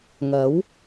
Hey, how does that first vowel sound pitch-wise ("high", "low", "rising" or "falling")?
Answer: rising